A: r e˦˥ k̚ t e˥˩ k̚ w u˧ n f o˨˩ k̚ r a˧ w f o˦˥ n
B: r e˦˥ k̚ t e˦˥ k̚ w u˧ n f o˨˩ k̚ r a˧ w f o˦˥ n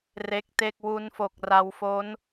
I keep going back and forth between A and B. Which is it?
A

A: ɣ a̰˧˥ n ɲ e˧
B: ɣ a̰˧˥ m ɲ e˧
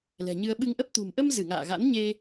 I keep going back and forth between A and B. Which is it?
A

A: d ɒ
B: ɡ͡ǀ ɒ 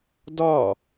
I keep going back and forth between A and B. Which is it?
A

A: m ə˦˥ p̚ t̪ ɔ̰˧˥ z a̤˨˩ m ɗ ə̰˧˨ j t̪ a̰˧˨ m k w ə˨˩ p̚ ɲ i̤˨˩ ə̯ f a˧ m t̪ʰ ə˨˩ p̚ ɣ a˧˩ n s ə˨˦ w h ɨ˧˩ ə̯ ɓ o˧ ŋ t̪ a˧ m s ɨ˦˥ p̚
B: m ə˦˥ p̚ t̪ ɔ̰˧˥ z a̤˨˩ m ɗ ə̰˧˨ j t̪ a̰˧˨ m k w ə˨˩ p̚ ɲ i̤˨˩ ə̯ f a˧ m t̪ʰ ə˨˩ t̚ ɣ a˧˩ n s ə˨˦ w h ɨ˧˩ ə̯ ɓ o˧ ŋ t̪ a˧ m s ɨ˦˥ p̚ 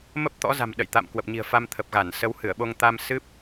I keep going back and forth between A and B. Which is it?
A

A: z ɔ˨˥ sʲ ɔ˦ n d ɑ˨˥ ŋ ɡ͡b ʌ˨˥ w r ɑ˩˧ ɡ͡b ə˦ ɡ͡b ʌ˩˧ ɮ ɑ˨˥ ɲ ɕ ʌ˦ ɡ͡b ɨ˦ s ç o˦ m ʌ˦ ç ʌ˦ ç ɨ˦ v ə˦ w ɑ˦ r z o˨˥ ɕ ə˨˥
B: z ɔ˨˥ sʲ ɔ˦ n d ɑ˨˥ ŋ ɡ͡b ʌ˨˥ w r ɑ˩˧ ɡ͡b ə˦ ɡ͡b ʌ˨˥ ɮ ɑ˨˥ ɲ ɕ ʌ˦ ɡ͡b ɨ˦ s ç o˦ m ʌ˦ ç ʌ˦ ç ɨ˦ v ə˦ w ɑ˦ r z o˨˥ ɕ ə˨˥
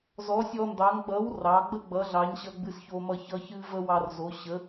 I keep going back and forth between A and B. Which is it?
B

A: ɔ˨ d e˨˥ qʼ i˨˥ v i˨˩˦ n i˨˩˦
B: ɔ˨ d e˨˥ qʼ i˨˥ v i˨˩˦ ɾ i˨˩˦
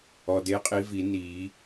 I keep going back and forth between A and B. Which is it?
A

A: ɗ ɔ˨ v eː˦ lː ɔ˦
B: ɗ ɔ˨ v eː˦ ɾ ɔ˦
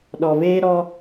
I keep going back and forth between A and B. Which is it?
B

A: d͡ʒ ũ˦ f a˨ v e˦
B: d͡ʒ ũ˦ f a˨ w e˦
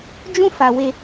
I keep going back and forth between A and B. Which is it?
B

